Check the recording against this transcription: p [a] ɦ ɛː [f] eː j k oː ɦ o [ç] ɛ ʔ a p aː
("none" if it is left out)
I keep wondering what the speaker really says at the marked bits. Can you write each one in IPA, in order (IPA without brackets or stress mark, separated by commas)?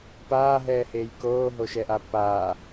aː, h, ʃ